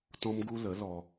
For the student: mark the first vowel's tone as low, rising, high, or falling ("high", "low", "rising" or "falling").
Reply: high